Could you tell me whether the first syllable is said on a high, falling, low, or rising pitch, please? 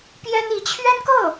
high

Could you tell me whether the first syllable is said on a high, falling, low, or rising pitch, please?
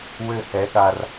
falling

